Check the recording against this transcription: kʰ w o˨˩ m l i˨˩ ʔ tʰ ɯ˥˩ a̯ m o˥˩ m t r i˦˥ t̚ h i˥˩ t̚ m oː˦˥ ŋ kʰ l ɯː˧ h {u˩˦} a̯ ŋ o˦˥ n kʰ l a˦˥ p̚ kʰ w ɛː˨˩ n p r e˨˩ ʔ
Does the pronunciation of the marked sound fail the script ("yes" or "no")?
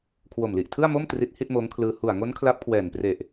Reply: yes